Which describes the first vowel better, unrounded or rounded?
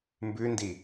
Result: rounded